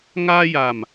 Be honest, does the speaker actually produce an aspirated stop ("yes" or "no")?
no